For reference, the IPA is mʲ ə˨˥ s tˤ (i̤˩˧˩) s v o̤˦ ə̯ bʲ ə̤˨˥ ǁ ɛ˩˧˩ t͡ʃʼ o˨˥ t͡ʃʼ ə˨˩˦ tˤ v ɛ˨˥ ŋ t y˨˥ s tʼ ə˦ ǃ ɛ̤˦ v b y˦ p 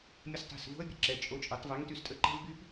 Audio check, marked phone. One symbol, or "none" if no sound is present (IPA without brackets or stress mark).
i̤˩˧˩